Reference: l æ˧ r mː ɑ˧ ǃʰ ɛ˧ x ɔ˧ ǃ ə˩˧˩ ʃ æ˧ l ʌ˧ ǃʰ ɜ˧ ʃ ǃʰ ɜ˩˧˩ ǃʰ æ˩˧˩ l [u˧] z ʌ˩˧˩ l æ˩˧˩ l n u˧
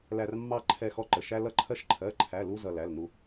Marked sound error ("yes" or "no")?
no